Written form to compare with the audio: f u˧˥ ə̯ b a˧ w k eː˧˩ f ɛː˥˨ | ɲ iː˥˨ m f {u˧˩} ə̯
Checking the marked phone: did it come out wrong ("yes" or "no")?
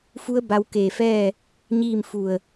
no